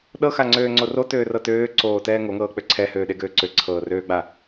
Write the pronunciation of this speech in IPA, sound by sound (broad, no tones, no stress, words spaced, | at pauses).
ɗɤxaŋ͡ǀøːŋ͡ǀo rotøːrɤ tøːǀoːtɛː ŋoŋɤːk͡pø ǀʰɛhøːɗeɡøː ǀøǀʰɤːrøːɡ͡ba